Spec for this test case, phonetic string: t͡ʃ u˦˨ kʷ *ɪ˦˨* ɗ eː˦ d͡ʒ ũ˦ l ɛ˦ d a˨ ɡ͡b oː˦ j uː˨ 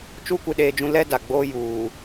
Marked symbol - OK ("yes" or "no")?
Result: yes